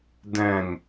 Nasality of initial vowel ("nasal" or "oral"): nasal